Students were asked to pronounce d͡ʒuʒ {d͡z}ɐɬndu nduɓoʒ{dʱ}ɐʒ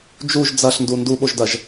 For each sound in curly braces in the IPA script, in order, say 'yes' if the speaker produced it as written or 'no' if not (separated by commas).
yes, no